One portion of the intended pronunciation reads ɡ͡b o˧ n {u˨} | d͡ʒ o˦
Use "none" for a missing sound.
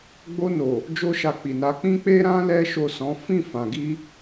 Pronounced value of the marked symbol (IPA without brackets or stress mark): o˨